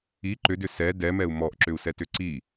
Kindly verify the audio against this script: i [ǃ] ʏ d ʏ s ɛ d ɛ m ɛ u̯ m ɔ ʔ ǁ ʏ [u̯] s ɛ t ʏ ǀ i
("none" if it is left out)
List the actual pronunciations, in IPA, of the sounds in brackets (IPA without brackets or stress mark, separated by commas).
ǃ, u̯